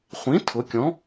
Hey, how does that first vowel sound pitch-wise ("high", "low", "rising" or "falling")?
rising